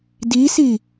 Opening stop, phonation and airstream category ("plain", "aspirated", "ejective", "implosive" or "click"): plain